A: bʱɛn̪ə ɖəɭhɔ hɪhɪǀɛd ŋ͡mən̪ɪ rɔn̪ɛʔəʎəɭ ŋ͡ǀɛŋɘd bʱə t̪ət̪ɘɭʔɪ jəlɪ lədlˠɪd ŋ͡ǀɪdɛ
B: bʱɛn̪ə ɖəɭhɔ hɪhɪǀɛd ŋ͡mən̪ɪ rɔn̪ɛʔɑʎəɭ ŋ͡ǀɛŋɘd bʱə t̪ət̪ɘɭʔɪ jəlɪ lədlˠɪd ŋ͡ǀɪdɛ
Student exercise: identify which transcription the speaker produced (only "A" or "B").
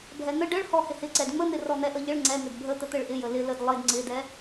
A